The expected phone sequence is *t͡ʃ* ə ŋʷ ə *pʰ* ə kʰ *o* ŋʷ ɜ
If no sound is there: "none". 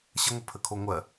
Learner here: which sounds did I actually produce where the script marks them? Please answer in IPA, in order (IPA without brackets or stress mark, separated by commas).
ɕ, pʰ, o